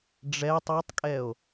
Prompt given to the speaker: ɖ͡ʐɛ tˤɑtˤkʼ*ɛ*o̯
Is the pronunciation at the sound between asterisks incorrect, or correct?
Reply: correct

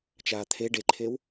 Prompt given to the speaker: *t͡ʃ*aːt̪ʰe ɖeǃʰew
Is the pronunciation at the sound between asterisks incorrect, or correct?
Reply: correct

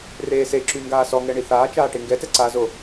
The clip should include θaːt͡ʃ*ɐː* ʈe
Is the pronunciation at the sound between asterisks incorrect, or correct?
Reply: incorrect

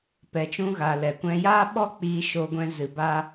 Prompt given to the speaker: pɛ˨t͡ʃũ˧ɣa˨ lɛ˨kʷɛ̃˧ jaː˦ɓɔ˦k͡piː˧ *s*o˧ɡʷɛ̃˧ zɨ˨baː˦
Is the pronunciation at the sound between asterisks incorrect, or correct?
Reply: incorrect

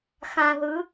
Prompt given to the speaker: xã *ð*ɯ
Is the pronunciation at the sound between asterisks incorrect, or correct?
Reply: correct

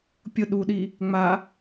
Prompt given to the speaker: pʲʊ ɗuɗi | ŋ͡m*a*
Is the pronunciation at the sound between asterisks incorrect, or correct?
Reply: correct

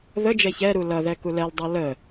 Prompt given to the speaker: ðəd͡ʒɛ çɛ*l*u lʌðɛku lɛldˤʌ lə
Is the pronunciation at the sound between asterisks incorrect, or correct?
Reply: incorrect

